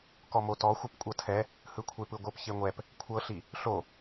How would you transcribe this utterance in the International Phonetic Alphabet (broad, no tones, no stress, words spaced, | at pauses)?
kɔmotɔxʷɯp kʷʼɤtʰɛ | hɯkʷʰepɯɡʷɤp çeŋʷɛp | kʷʰɤɬi | ɬo